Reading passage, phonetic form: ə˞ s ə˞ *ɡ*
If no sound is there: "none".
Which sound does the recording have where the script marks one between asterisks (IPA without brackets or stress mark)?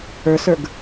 ɡ